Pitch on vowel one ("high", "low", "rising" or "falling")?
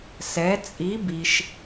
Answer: rising